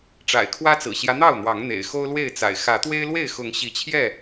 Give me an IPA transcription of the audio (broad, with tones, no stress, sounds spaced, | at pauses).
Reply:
ʈ͡ʂ a̰˨˩ ɪ̯ kʰ w ä˦ t͡s ɹ̩˨˩ ɕ j ä˦ n̪ ɑ˥˨ ʊ̯ n̪ w ɑ˨˦ ŋ n̪ ḛ˨˩ ɪ̯ x o˦ ʊ̯ l w e˥˨ ɪ̯ t͡s a̰˨˩ ɪ̯ x ä˨˦ t̪ w e˦ ɪ̯ l w e˥˨ ɪ̯ x ʊ˨˦ ŋ ɕ i˨˦ t͡ɕʰ j ɛ˥˨